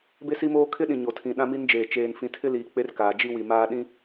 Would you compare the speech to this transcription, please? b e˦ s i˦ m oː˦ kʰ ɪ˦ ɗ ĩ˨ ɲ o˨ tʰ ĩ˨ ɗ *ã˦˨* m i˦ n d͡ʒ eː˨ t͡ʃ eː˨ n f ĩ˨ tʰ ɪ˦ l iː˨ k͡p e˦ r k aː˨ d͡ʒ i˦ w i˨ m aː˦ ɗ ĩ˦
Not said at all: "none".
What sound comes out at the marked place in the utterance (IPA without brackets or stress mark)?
ã˦